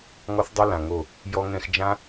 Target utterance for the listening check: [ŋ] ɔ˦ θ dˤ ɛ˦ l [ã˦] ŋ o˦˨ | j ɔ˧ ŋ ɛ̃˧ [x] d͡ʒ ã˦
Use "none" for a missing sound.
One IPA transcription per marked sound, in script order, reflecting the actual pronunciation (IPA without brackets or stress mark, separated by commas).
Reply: ŋ, ã˨, x